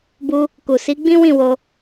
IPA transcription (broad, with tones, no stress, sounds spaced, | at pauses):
b u˧ | k u˨ s i˨˦ ɡ͡b ĩ˦ w ĩ˦˨ w o˧